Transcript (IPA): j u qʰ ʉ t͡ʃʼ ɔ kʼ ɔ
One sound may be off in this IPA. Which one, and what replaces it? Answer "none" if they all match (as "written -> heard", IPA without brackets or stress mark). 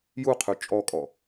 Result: none